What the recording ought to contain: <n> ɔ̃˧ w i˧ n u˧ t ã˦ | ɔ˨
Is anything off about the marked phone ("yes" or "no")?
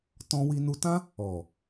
yes